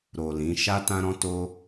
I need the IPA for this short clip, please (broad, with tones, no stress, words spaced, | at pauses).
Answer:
ɾo˨ lĩ˨˦ ʃa˦tã˦ ɾɔ̃˦to˦